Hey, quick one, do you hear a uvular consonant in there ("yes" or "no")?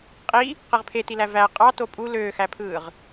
yes